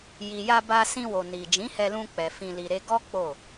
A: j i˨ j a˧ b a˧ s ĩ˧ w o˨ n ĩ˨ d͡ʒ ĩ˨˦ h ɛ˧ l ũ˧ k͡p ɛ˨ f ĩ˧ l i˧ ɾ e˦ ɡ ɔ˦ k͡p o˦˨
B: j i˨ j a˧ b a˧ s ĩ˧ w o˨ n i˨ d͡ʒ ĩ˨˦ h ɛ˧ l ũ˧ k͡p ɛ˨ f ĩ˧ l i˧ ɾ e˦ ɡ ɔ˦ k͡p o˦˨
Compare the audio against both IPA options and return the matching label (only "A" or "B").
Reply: B